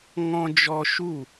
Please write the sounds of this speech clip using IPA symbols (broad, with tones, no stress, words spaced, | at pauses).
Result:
ŋɔ̃˧d͡ʒɔ˧ʃu˦˨